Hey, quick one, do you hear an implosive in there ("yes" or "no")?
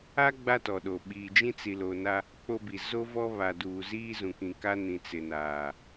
yes